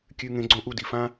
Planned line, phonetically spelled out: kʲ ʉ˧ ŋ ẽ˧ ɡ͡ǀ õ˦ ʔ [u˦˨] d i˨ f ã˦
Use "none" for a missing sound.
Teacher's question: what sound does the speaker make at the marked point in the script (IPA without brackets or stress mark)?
u˦˨